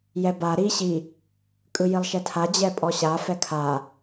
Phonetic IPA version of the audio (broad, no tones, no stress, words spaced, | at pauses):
jɛba ɾi ɕi | kʼɯjilˠʃɛtʰa d͡ʑɛpʼɔɕa fɛkʰa